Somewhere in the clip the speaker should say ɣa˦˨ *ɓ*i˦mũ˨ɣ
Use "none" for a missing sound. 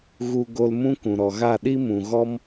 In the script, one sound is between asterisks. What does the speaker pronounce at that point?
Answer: ɗ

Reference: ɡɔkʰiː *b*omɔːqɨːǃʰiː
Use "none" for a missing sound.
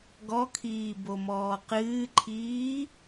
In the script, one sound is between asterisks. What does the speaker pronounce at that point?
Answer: b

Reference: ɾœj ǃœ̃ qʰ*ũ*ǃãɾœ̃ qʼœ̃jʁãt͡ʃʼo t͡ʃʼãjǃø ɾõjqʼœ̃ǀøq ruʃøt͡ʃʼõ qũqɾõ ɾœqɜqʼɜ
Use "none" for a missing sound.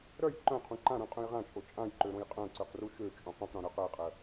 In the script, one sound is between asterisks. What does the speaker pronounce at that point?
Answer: ũ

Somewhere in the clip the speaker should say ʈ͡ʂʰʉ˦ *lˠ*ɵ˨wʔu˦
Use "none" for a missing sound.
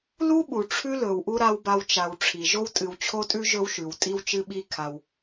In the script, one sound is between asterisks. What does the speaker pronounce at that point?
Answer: l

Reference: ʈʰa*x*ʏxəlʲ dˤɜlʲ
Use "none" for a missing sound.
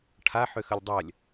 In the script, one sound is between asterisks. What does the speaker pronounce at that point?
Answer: ħ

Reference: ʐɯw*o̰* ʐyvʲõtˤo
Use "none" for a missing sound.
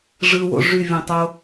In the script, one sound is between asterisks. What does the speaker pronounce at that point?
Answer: o̰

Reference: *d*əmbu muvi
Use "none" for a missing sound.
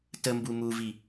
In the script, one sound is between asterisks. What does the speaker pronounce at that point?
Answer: t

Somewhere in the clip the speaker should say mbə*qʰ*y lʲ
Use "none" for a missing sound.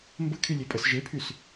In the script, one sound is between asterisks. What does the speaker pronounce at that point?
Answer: kʰ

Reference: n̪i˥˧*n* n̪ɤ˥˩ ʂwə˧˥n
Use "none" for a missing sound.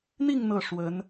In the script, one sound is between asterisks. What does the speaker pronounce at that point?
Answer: ŋ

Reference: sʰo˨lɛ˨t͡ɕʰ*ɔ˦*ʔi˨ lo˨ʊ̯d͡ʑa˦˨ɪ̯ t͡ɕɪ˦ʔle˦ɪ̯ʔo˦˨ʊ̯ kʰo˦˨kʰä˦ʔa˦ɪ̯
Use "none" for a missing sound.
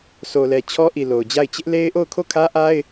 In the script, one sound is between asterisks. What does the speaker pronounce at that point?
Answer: ɔ˦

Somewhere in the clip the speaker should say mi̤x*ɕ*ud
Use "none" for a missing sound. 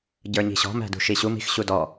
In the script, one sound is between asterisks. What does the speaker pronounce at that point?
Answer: ɕ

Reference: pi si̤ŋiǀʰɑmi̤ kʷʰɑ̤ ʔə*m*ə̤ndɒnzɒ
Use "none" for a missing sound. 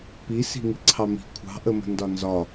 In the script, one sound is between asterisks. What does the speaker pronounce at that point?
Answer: m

